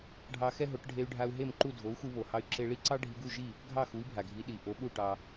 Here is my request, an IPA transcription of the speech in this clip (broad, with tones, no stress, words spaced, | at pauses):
ɖʱɑ˧xɛ˥ɦo˩˥ʈ ɖʱe˧y̯ɖʱa˧u̯ɦe˥˩mǃu˥˩ dʱo˩˥u̯xu˧βo˩hɑ˧y̯ ǁe˧ɭi˥˩ǀɑ˥ ɖʱi˧ɡu˥˩ʒi˥˩ | ɡʱɑ˥˩xu˩˥i̯bʱa˩ɡʱi˩˥ ɗi˩ ʔo˩˥ɓu˥˩ ʈɑ˧